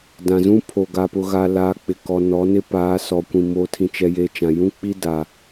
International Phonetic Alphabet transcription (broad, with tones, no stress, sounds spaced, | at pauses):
d ã˨ z ũ˦ pʰ o˨ ɡ a˨ p ʊ˨ ɣ a˨ l aː˨ k͡p ɪ˨ k ɔ˨ n ɔ˨˦ n ɪ˦ p aː˨˦ s ɔ˨ kʷ ĩ˨ m oː˨ tʰ ĩ˨ t͡ʃ ɛ˨ j eː˨ t͡ʃ ã˨ j ũ˦ k͡p i˦ d a˨